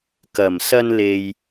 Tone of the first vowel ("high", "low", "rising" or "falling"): low